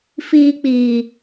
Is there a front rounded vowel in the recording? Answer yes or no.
no